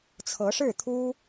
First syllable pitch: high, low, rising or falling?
rising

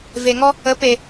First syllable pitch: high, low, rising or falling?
low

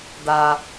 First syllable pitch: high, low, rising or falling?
high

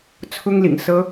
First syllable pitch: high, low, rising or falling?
high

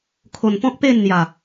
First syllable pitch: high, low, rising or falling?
low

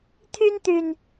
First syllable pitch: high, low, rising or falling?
high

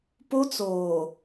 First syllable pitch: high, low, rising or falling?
high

